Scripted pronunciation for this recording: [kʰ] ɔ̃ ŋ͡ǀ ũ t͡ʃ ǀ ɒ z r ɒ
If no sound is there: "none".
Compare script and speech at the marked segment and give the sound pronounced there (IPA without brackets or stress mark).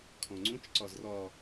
kʰ